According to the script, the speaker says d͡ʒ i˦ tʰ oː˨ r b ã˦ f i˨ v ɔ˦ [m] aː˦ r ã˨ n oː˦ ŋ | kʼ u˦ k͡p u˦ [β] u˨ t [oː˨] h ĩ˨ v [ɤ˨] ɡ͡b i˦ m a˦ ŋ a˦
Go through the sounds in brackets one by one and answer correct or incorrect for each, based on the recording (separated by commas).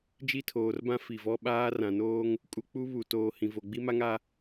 incorrect, correct, correct, incorrect